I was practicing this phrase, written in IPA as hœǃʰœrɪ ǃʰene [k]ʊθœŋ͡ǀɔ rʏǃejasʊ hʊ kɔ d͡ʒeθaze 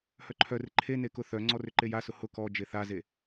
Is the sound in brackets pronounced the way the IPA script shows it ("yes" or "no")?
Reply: yes